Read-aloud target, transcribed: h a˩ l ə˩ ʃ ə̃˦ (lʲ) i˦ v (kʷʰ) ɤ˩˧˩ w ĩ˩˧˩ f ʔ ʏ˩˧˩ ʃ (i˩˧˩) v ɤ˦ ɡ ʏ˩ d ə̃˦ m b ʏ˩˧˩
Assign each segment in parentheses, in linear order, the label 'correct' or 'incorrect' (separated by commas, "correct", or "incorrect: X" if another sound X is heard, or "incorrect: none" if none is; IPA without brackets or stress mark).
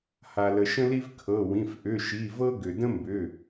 incorrect: l, incorrect: kʰ, correct